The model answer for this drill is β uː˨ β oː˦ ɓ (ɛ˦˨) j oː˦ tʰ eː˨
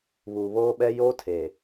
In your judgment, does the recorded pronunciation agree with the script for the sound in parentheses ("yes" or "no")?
no